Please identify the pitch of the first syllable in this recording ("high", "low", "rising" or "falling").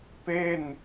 falling